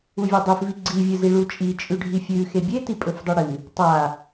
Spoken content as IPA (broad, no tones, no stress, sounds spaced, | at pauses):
u vʲ a dˤ ʉ f v i ɡ͡ǀ i vʲ ɨ z i ɭ u t͡ʃʼ i t͡ʃʼ ʉ ɖʱ i fʲ ʉ x e bʲ e t i pʼ ɵ f dˤ u ɽ ɨ | tˤ a